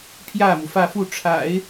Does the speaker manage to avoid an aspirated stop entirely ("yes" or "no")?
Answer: no